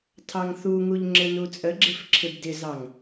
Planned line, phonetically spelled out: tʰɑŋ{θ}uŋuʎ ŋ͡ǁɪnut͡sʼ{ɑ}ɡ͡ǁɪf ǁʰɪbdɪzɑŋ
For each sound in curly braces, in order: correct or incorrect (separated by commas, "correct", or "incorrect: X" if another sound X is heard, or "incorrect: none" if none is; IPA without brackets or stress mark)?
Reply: correct, incorrect: ə